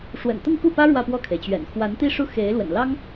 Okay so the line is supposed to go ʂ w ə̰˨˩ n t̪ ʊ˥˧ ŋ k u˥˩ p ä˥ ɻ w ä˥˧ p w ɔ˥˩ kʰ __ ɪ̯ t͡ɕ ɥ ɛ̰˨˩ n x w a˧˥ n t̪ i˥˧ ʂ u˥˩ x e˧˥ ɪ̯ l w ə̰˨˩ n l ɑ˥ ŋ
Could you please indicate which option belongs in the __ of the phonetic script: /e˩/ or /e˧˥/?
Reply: e˩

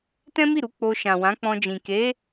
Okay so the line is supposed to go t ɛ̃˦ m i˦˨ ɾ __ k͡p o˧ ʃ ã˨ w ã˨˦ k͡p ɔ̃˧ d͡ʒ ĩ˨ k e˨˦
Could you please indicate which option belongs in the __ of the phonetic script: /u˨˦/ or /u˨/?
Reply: u˨˦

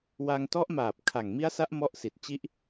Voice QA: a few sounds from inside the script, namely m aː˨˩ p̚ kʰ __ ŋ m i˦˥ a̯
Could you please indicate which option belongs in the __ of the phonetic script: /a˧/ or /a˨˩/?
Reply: a˨˩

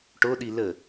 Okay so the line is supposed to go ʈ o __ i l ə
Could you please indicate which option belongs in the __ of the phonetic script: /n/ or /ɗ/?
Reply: ɗ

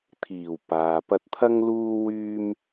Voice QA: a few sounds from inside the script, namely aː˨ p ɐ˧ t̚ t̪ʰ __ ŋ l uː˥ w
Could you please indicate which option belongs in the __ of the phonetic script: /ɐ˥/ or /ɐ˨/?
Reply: ɐ˥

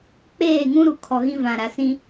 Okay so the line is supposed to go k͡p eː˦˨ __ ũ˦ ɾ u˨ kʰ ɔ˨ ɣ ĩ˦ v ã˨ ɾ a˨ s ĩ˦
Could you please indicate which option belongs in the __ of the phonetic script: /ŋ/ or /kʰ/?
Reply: ŋ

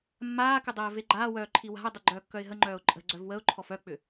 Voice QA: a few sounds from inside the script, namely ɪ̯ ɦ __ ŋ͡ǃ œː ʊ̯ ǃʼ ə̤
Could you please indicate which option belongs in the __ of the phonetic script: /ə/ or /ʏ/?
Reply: ə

